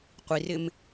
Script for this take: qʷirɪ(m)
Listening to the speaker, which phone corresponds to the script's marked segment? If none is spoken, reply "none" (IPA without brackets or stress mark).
m